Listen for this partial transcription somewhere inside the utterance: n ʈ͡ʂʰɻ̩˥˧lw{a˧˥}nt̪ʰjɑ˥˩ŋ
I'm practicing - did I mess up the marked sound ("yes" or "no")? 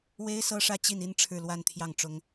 yes